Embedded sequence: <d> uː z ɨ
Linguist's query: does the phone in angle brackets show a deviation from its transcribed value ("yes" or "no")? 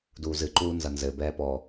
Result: no